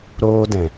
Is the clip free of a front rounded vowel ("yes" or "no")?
yes